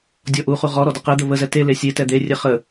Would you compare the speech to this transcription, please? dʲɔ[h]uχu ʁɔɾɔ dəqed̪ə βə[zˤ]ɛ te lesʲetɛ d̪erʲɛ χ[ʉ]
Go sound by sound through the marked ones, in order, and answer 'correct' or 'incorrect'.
incorrect, incorrect, incorrect

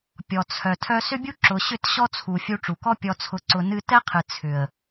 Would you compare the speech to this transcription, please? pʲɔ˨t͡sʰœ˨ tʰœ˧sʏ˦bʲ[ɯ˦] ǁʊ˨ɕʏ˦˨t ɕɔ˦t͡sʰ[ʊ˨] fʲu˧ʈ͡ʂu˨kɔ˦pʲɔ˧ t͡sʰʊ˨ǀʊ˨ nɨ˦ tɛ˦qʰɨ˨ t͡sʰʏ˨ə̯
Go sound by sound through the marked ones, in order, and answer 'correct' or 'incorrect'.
incorrect, incorrect

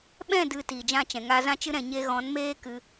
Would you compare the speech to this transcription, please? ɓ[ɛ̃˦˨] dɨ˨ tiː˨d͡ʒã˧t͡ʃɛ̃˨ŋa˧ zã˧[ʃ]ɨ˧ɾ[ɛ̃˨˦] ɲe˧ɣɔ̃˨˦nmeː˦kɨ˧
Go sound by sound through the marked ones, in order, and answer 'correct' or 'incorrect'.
correct, incorrect, incorrect

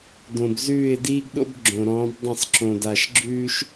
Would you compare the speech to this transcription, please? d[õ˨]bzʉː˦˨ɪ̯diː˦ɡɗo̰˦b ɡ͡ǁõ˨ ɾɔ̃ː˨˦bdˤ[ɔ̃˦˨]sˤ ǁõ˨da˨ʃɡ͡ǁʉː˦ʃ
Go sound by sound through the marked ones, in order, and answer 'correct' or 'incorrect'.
correct, incorrect

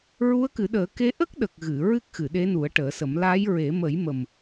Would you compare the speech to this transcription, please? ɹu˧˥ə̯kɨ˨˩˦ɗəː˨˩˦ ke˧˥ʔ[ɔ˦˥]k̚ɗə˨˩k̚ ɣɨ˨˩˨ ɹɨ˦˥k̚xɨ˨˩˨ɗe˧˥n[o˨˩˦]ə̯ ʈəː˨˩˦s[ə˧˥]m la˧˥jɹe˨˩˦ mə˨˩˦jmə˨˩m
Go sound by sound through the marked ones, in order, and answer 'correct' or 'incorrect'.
incorrect, incorrect, incorrect

